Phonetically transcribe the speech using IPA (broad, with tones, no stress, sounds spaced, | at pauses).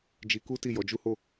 d͡ʒ i˧ k u˦ t i˦˨ j ɔ˨˦ d͡ʒ u˦ h o˦˨